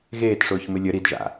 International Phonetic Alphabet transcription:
ɣeːtʂʊːçmɪ lʲə ɾidʒa̰

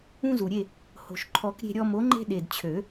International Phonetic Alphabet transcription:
ũ˦zu˨˩ɾʲe˥˨ | ho̤˨˩ʃǃʰɔ˨˩˦k ɾʲe̤˦ɾʲɔ˦ mo˨˥ ŋ͡ǃe̤˦ɗe˨˩dt͡ɕʰø˨˩˦

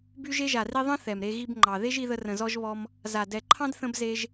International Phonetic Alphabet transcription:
by˧ʒe˧ʒa˨ri˧ ðˤə̃˦θɛ˨mɾe˧ ɣi˧bŋ͡ǃɑ˨ ðe˦ʒi˧ðə˧rə̃˨ zɔ˧ʒβɔ˧m | za˨ dɛ˨ǃʰɑ̃˧d θə̃˧bze˧ʒ

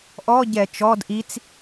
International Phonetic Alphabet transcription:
ʔɔɟɛ t͡ʃɔd ʔit͡s

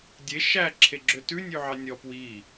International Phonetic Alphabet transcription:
dʲe ʃæ ǁʰeɡ͡ǁøtʉ nʲʉʕɑnʲɔ pwi

